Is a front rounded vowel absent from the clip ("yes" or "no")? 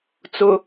yes